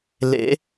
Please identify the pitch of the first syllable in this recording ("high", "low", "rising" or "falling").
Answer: rising